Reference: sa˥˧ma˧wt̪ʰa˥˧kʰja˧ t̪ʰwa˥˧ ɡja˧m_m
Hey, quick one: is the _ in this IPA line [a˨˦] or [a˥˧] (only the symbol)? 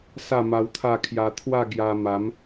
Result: a˨˦